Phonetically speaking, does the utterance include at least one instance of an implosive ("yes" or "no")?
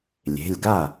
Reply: no